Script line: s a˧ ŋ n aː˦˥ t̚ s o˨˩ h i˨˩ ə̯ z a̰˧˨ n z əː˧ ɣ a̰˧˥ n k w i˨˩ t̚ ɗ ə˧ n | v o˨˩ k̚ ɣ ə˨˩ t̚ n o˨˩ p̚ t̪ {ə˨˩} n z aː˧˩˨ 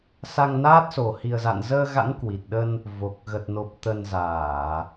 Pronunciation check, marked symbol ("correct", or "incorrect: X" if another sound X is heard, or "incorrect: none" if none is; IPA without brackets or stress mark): correct